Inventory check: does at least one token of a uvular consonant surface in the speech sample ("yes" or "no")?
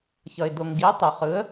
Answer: yes